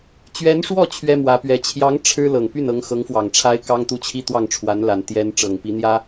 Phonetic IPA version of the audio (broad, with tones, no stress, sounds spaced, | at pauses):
t͡ɕ ɥ ɛ˧˥ n ʂ w ɔ˥˩ t͡ɕʰ ɥ ɛ˥ m w ä˧˥ p ɥ ɛ˧˥ t͡ɕʰ j ɑ˧˥ ŋ ʈ͡ʂʰ ɻ̩˥ l ɤ˨˩ ŋ p y˥˩ n ɤ˧˥ ŋ x ɤ˧˥ ŋ f w ɑ˨˩ ŋ ʈ͡ʂʰ a˥ ɪ̯ k ɑ˥ ŋ t̪ u˥˧ t͡ɕʰ i˥˧ t̪ w ɑ˥˩ ŋ ʈ͡ʂʰ w a˧˥ n l a˨˩ n t̪ j ɛ˥ n ʈ͡ʂ ɤ˨˩ ŋ p i˧˥ n̪ j ä˥